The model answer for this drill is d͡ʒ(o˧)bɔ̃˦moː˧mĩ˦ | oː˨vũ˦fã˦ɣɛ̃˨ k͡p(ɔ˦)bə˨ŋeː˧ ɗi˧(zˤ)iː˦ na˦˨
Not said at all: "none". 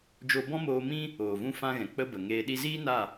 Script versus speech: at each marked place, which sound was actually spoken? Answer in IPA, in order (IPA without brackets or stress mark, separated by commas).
o˧, ə˦, z